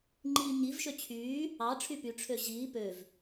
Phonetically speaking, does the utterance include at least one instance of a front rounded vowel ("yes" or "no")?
yes